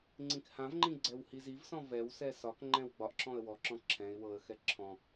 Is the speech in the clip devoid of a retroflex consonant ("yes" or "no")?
yes